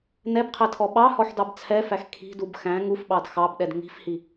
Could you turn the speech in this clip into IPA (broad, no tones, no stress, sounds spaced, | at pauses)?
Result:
n ɛ b qʰ ɛ tʰ ɔ ɓ ɑ h ɔ ħ d ɑ b t͡sʰ ɛ f æ x kʰ i̤ d u b x æ̃ ŋ u f ɓ ɑ d x ɑ b ɗ ɛ d ŋ i̤ f h i